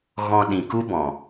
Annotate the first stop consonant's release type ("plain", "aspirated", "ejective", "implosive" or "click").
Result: implosive